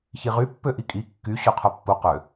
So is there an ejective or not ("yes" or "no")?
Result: yes